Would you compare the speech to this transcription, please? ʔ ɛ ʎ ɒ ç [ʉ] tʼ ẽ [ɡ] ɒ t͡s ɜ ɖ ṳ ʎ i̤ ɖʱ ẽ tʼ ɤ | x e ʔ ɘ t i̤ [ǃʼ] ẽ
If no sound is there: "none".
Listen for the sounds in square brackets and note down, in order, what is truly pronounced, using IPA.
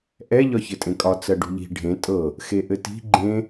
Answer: ɘ, kʼ, ɡ͡ǃ

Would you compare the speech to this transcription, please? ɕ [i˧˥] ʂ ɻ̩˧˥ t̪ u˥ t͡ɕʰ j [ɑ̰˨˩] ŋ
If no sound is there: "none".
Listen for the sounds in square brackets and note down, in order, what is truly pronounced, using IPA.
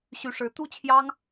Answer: y˧˥, ɑ˥

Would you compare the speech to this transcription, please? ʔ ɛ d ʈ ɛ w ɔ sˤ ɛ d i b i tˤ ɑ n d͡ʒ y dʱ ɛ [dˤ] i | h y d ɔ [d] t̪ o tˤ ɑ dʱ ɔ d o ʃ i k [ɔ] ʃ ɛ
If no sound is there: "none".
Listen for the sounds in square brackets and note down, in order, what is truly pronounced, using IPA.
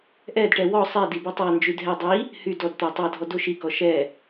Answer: dˤ, d, ɔ

